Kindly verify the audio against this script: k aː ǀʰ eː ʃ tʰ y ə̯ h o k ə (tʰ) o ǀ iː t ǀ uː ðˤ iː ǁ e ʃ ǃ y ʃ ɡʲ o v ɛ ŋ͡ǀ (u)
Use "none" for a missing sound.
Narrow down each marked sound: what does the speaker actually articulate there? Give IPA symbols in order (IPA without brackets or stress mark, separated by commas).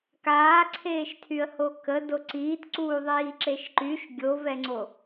d, o